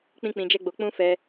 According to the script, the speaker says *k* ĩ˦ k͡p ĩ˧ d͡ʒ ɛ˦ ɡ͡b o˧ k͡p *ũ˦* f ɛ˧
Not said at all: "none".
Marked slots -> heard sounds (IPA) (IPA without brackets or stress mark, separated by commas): k͡p, ũ˦